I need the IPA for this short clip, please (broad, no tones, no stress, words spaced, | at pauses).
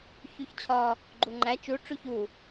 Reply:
çuçt͡ɕʰɒ | ɡ͡ǃuŋ͡ǃæ t͡ʃu ʈ͡ʂuçu